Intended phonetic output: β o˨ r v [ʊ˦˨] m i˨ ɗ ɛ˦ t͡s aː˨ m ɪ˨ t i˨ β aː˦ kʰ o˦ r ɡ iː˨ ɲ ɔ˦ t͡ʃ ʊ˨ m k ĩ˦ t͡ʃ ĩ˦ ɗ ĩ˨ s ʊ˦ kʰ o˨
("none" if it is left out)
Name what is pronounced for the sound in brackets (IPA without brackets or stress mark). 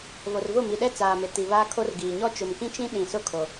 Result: ʊ˦˨